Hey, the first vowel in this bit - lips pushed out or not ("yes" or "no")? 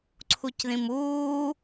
yes